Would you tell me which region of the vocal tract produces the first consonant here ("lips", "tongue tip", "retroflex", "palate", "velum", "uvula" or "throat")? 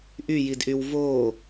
throat